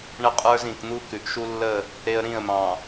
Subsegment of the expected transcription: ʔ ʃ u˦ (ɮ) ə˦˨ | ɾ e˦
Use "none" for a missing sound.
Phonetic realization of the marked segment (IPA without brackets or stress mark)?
lː